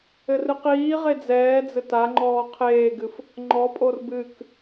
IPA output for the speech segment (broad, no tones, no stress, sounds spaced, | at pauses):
ɘ r ɨ q iː ʁ e d͡z ɛː d͡z ɘ t a ŋ͡ǃ ɔː qʰ eː ɡ ɨ f | ŋ͡ǃ ɔ pʼ o r b ɨ k